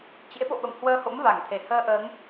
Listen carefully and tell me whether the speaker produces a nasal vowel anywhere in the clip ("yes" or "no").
no